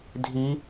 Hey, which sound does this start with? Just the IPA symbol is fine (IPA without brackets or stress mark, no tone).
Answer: dʱ